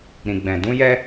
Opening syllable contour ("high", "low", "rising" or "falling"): low